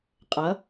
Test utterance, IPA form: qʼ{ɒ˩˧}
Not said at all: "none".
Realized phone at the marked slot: ʌ˩˧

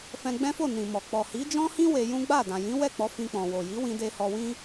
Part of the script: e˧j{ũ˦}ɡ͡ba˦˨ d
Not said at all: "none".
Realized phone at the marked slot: ũ˦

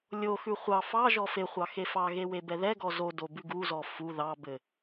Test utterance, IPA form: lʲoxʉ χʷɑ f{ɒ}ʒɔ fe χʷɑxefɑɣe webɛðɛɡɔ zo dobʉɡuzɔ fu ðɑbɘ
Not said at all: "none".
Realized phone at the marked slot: ɑ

